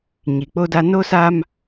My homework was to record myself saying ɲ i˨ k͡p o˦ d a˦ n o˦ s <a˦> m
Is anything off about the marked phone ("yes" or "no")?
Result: no